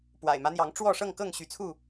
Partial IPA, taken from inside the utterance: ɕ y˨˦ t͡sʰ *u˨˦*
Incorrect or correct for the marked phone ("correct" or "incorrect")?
incorrect